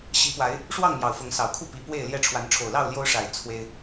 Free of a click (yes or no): yes